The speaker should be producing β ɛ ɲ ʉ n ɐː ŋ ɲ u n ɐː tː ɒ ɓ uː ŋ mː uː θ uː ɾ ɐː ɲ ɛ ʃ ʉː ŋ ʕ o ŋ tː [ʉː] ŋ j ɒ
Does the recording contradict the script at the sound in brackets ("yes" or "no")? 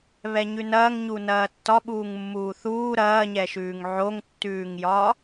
no